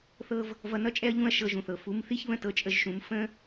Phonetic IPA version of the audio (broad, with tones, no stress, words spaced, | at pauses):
θɤ˦v | vʌ˧nʌ˦t͡ʃʼɛ˦ɐ̯ ʎũ˦ɐ̯ʃɤ˧ʒũ˨θɤ˨ fu˨˦mθi˦çβə̃˦ tɤ˧t͡ʃʼə˧ʒʃũ˨˦m fə̃˦